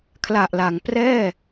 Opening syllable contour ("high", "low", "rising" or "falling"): low